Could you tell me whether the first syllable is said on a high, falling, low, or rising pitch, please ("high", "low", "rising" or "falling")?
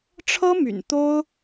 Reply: high